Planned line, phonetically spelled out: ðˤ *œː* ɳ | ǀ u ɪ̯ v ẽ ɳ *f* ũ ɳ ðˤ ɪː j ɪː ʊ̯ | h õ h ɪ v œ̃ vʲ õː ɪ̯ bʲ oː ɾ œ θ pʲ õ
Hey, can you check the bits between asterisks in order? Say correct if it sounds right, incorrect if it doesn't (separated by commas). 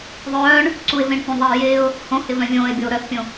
correct, incorrect